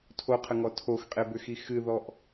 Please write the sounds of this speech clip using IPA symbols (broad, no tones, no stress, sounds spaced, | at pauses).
tʰ o qʰ ə ŋ ɔ tʰ o x qʼ e b ʏ x i x ɨ ð ɔ ʔ